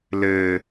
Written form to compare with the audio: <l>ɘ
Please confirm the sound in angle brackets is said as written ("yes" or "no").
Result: yes